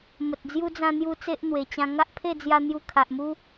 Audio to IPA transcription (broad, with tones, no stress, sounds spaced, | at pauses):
m ə˨ t̚ d͡z j u˦ d͡z ã˧ n̪ j u˧ t͡s e˦ ʔ n̪ w e˨˩ t͡ɕ ã˧ ŋ a˦ ʔ pʰ e˥˧ d͡z j a˧ n̪ j u˧ kʰ a˨ ʔ m u˦